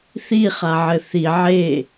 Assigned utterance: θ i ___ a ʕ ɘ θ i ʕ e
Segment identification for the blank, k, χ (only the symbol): χ